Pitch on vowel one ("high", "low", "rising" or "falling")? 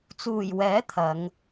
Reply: low